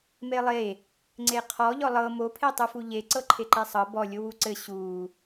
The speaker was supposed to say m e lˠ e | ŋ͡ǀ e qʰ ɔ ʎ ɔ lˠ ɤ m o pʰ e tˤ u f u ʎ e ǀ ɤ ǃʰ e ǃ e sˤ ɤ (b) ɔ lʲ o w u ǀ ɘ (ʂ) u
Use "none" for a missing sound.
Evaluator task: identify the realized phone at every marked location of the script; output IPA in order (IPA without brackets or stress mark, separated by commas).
b, ɕ